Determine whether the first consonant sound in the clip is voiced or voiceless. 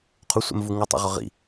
voiceless